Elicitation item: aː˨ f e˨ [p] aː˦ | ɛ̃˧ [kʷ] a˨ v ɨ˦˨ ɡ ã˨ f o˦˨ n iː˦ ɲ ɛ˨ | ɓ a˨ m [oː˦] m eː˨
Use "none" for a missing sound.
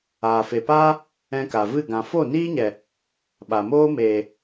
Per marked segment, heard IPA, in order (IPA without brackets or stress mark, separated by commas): p, k, oː˦